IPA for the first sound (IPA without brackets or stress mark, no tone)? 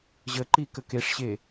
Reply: ʑ